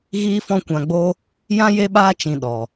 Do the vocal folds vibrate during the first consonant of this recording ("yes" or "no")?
yes